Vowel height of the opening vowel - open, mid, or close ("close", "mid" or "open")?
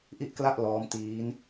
close